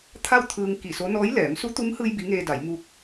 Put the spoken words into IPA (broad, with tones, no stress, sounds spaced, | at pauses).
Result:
t̪ʰ a˥˨ w t̪ʰ ɯː˧ ŋ k i˧˩ s o˧˥ n ɔː˧˥ j l ɛː˩˧ m s u˧˥ t̪ u˧˥ m h ɯː˧ j b i˧˥ ŋ eː˧ d a˩˧ j m u˧ k̚